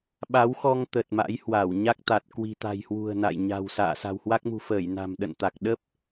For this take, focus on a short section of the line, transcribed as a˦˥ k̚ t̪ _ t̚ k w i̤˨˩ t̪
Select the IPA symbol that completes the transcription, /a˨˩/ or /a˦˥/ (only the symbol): a˨˩